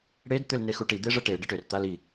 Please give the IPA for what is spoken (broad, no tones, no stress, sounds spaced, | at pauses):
ɽ e d t̪ ʏ l n e x u ʈ i d̪ e ʐ ə ʈ e ɖ ə ʈ ʏ r t̪ a l i